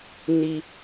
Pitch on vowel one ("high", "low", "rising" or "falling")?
high